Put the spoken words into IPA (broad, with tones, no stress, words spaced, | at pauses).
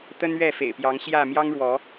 t̪ə˦nɥɛ˥˨fḛ˨˩ɪ̯pjɑ˨˦ŋ ɕjä˥˨ mjɑ˦ŋɻwɔ˨˦